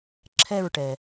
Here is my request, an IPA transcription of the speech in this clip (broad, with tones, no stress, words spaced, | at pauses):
ǁʰɛ˥˧ɹʈɛ˨